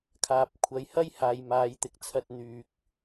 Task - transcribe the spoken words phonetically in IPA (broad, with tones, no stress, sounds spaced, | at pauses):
kʰ aː˨ p̚ kʷʰ ɐ˨˧ j h ɐ˥ j h aː˨ j m aː˨˧ j t̪ ɪ˨ k̚ t͡sʰ ɐ˧ t̚ n̪ yː˧ k̚